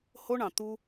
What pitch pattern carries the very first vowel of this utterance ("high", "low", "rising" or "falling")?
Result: high